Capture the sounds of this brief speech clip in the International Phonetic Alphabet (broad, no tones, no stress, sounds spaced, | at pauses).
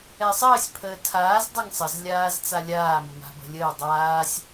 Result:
ɛ sˤ əː sʲ pʰ əː tʰ aː z dˤ a ŋ sˤ ə z lʲ aː z t͡s a lʲ aː m ə m a̤ b ə̤ lʲ əː dˤ aː sʲ